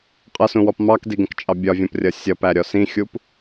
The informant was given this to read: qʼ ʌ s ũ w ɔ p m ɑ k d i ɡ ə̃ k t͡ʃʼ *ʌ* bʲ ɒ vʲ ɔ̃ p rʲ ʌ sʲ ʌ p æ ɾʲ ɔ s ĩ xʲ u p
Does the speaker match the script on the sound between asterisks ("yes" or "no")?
no